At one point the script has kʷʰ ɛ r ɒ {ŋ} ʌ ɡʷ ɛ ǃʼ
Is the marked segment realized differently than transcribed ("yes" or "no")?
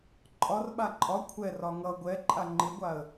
no